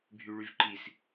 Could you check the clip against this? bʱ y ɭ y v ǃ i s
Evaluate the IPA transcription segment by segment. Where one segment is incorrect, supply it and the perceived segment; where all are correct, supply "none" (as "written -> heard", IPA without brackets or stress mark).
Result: none